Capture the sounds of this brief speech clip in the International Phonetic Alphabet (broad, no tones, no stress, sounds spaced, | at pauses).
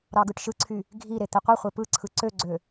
ɾ ɑ ɡ ɯ ʈ ʃ ɯ ǀʰ y | ɡʱ i ɾ e t̪ i qʷ ɯ χʷ e p ɯ ǀʰ ɯ ǀ ø ɡ͡ǀ ø